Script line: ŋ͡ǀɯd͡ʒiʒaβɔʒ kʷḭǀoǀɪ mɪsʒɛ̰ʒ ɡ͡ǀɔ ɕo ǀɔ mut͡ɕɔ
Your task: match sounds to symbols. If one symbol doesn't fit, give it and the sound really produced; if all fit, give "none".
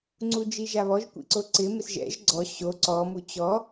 ɯ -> u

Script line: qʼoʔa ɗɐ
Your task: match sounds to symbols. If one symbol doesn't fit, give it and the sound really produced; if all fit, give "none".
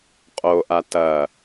ɗ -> t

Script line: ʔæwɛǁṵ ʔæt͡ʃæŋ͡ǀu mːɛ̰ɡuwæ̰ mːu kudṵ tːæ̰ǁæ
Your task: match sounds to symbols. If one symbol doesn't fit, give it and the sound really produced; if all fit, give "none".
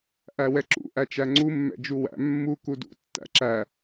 ɡ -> d͡ʒ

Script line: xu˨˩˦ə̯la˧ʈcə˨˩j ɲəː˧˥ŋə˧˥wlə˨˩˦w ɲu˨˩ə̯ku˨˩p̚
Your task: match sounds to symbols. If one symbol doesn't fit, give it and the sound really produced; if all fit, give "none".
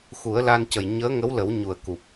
ʈ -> n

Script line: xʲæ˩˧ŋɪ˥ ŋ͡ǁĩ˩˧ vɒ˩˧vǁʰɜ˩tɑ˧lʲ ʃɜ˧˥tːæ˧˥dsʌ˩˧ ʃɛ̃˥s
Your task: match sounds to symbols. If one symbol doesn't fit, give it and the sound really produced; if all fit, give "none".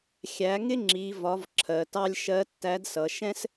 ĩ˩˧ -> i˩˧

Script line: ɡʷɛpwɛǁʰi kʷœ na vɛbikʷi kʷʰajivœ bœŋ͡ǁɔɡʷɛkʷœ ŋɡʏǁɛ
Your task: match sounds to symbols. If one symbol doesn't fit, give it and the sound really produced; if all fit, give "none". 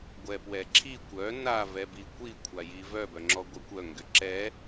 none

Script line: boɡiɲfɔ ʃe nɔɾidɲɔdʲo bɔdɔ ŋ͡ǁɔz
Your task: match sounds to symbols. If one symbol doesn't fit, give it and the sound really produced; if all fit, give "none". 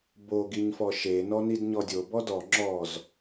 ɾ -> n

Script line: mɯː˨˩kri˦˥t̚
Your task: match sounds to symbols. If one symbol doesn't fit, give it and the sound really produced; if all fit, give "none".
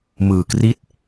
none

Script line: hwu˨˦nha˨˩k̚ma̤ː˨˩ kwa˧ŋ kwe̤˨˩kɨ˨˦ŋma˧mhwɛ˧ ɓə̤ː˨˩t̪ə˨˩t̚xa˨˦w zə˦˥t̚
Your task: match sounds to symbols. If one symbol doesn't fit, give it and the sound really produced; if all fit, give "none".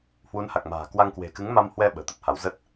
x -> h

